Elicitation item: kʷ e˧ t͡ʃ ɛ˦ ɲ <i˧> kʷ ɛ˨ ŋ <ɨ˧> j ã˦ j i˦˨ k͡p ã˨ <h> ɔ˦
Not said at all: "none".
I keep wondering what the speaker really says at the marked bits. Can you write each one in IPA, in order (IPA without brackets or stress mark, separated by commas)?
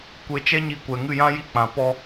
i˧, ɨ˦˨, p